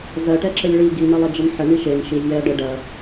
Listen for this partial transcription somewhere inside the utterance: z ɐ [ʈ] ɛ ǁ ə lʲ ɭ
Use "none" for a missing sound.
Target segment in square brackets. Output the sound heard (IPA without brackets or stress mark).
ʈ